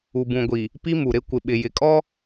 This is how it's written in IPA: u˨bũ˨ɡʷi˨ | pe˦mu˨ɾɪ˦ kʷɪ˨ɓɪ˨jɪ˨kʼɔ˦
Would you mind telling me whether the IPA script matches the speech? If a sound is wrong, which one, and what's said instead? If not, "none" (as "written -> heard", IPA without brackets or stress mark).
e˦ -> i˦